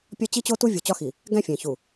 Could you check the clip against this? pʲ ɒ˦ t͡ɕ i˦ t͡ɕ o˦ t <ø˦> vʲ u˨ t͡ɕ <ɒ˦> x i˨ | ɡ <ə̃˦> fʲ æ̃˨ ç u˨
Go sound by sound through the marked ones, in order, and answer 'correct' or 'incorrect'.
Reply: incorrect: u˦, correct, incorrect: æ̃˦

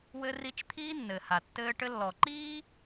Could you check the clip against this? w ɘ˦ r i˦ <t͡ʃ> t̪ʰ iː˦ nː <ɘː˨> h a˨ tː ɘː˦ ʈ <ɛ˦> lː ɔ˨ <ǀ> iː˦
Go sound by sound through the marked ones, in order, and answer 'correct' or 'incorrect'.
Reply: correct, correct, incorrect: ɘ˦, incorrect: ǃ

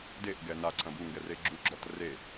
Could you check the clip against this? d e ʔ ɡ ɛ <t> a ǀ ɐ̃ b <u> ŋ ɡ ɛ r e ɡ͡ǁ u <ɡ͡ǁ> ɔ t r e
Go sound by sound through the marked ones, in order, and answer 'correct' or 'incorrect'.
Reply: incorrect: n, correct, correct

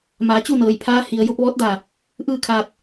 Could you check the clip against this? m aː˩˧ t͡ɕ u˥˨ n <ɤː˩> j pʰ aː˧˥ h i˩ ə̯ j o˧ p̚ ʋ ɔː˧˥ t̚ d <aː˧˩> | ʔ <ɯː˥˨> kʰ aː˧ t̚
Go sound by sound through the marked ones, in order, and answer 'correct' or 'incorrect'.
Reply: correct, correct, correct

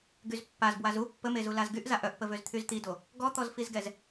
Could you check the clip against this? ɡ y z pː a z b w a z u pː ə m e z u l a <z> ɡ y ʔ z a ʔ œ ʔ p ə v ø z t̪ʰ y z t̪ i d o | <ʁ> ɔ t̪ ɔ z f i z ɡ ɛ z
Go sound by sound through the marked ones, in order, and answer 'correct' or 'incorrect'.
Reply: correct, incorrect: ɡ

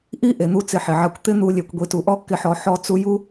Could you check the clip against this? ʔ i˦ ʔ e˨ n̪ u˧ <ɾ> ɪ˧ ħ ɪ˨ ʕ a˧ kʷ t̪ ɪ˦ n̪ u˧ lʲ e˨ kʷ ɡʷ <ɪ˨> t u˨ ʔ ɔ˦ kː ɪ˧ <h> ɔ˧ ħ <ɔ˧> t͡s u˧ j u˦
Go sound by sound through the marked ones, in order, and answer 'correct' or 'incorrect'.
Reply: incorrect: t͡s, incorrect: i˨, incorrect: ħ, correct

